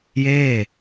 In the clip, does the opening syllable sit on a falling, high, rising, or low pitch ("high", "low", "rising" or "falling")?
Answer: falling